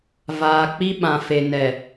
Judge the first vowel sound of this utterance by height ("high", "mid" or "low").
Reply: low